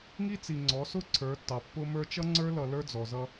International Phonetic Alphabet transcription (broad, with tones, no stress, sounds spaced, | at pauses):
ŋ i˦ t͡s i˨ ŋ͡ǀ ɔ˨˦ s ʊ˦ ǀʰ ə˞˨˦ tː ɑ˨ pː ʊ˦ m ə˞˦ t͡ʃ ʌ˦ ŋ͡ǀ ə˞˦ l ʌ˨ l ə˞˦ d͡z ɔ˨ z ʌ˦